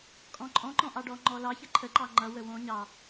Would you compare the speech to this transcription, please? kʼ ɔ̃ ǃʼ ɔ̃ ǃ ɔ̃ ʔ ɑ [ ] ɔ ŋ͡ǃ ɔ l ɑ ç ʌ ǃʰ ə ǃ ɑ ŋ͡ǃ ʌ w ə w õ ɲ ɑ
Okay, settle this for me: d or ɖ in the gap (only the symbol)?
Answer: ɖ